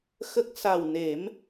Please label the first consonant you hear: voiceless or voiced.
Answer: voiceless